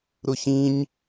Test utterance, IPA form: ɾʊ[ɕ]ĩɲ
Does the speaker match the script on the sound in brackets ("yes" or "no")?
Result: yes